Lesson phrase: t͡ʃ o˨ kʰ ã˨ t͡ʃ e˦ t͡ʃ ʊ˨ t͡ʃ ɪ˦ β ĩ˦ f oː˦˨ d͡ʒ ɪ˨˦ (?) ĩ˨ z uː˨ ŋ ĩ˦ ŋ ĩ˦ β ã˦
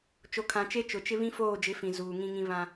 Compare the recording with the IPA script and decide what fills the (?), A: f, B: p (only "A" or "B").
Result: A